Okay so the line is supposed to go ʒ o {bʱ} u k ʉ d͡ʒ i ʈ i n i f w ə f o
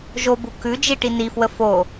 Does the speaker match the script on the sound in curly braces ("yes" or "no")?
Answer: no